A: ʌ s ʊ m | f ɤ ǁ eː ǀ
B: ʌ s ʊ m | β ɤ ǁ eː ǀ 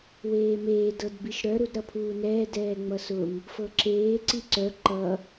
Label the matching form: A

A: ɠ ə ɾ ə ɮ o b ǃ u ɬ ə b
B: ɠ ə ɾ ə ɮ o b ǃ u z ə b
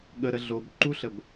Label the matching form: A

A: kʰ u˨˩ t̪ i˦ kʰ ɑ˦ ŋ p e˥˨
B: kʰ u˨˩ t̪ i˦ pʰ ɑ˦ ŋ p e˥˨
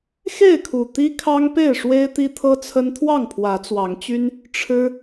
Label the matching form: A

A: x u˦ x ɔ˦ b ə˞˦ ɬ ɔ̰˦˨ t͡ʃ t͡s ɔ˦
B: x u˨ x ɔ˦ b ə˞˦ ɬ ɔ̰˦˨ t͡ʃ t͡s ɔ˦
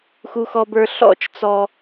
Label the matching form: A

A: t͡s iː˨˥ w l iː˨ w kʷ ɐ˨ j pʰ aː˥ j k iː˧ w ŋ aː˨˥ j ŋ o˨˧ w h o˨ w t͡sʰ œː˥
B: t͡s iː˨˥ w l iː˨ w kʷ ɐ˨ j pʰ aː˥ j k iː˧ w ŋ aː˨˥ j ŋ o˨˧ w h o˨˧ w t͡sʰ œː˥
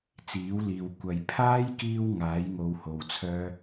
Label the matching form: A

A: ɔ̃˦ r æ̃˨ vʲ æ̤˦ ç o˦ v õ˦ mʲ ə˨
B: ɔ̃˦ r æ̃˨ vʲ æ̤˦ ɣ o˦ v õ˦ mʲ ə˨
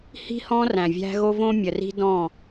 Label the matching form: B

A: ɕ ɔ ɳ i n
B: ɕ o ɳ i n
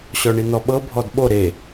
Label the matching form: A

